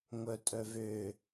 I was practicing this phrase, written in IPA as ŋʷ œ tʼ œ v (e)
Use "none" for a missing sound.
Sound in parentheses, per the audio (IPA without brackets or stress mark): ø